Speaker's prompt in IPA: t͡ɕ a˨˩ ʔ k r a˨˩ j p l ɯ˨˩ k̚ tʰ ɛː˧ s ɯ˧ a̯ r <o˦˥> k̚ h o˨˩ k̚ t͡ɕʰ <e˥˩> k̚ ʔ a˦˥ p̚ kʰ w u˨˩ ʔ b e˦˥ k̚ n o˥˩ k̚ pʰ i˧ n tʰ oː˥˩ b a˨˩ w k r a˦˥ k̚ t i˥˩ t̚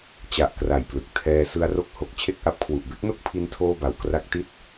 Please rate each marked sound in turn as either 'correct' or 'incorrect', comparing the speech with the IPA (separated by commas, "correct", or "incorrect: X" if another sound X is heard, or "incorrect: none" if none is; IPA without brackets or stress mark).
correct, correct